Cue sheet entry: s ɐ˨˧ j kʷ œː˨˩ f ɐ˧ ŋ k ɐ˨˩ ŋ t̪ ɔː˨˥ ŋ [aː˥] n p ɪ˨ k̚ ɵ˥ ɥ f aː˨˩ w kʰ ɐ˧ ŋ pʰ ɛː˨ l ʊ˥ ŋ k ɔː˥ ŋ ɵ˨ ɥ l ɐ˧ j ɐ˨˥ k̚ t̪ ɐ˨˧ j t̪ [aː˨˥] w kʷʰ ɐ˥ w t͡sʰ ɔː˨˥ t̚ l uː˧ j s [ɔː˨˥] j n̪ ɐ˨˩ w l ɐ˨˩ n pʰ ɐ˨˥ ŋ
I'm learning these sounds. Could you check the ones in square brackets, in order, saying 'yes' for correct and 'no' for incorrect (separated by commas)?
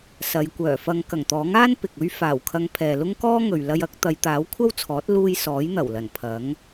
yes, yes, yes